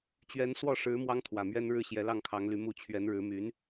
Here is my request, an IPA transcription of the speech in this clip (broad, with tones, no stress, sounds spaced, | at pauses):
t͡ɕ ɥ ɛ˧˥ n s w ɔ˥˩ ʂ ɻ̩˧˥ m w ɑ˥ ŋ t̪ʰ w ä˨˩ m ɥ ɛ˥ n ɻ ɻ̩˥ ɕ j ɛ˧˥ l ɑ˥˩ ŋ kʰ ɑ˧˥ ŋ l y˧˥ m u˧˥ t͡ɕʰ ɥ ɛ˧˥ n ɻ ɻ̩˧˥ m y˧˥ n